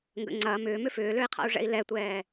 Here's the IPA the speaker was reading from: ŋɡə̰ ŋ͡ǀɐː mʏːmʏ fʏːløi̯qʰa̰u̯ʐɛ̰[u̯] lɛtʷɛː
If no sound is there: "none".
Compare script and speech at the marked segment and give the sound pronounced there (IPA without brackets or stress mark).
i̯